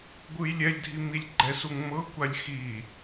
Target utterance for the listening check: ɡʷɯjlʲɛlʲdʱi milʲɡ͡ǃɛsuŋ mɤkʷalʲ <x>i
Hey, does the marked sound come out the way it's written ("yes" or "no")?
yes